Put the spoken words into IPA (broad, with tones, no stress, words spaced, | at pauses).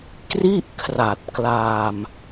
kri˥˩ʔkʰra˨˩t̚klaː˧m